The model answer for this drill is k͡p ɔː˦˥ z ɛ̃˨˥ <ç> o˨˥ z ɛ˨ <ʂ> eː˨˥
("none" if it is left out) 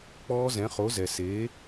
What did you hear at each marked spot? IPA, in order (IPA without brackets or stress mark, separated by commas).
χ, s